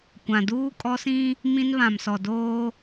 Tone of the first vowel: low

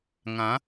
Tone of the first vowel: rising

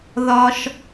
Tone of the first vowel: low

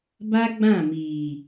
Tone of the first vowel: high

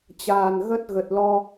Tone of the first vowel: low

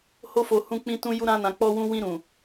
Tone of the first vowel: high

